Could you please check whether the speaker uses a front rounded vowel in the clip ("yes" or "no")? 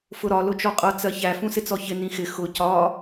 no